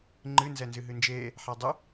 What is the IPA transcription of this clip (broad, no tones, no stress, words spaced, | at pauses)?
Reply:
ŋ͡ǃɨ nzɛnzɨɦɨnd͡ʒeː | ħadˤʊ